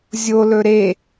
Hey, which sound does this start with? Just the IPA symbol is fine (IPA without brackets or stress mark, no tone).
zʲ